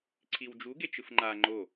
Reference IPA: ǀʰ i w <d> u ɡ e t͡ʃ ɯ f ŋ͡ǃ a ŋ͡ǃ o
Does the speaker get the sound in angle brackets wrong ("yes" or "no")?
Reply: yes